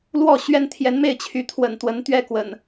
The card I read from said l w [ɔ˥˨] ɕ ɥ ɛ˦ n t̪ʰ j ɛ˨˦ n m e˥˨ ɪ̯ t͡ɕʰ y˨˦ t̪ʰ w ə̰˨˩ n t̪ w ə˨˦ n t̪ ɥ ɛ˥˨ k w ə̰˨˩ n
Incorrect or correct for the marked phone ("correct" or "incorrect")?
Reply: correct